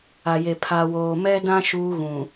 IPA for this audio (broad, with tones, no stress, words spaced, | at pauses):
a˨je˨ pʰa˨woː˨mɛ˦dã˦ ʃuː˦ɣũ˨